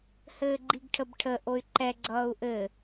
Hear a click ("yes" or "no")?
yes